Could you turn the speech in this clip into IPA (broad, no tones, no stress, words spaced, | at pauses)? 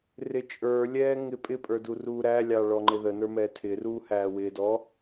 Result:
rɪt͡ʃʼə˞lʲɛː ŋɪpʼɪpʼə˞ duruːɾælʲɑ ɭɔŋ͡ǃɪðənə˞ mɛtʰɪruː hæːwɪdɔ